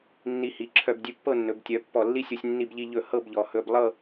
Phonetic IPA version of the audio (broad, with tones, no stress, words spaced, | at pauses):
nːi˧hi˩˧ǁʰœ˧b dʲʉ˧pːɤ˥˧nːɵ˩˧b tʲœ˩˧ pːɔ˧˩lːi˥sʲu˧sʲ nːi˧bʎi˧ʎɵ˧˩ hɤ˥˧bʎɔ˩˧ hɵ˧b lˠɤ˥˧